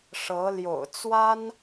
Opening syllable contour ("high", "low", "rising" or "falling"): rising